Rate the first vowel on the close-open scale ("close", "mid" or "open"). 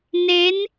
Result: mid